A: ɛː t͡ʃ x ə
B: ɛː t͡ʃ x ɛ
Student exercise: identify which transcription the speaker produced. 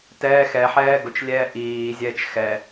B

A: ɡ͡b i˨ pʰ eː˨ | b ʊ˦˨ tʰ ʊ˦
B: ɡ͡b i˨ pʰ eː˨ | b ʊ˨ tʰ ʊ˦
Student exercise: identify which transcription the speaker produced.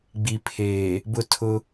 A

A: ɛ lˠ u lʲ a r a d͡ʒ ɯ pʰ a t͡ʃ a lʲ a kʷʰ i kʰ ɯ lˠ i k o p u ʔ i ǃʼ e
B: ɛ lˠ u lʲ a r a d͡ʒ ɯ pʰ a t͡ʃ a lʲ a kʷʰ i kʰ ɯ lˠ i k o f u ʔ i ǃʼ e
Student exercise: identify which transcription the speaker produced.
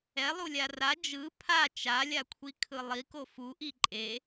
B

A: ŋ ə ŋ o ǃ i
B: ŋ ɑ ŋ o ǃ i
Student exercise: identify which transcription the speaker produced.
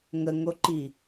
A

